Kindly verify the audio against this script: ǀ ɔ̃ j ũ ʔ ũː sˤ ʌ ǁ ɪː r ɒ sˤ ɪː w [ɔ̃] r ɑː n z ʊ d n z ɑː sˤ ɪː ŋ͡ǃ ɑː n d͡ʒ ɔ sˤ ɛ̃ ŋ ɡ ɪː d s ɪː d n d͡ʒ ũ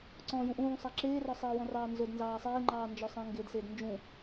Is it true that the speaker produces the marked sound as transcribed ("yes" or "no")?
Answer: yes